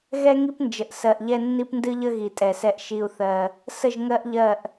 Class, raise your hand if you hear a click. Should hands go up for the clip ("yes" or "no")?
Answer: no